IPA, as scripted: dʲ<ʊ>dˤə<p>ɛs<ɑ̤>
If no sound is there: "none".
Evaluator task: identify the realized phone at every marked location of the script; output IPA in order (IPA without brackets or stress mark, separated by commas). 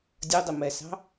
ʊ, m, ɑ̤